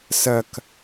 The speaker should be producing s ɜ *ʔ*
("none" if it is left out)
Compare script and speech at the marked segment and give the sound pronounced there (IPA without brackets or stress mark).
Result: k